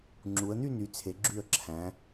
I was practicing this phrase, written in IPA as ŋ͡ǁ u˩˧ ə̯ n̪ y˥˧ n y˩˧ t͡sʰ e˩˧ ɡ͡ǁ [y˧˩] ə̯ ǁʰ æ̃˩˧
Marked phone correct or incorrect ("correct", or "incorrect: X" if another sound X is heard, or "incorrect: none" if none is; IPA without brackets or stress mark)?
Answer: correct